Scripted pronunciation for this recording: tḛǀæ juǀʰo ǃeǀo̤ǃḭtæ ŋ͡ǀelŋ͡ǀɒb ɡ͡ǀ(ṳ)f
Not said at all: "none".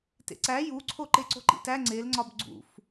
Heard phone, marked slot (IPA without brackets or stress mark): ṵ